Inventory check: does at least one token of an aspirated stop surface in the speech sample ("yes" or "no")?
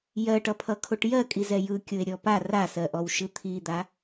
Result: yes